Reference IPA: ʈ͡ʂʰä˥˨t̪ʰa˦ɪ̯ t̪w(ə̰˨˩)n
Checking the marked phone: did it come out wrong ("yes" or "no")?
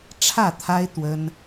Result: yes